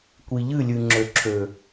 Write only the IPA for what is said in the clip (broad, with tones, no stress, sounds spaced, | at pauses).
kʷ i˨ ʎ ɨ˦˨ lʲ ɨ˨ ŋ͡ǁ ø˨ ǁʰ ø˨